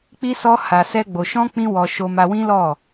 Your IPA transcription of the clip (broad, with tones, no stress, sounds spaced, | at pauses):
k͡p i˦ s ɔ˦ h a˧ s ɛ˦ ɡ͡b o˧ ʃ ɔ̃˦ k͡p ĩ˦ w ɔ˧ ʃ o˧ m a˧ w ĩ˦ l ɔ˦˨